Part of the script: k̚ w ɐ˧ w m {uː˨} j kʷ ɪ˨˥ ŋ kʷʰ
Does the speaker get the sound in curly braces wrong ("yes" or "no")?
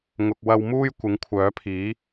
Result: yes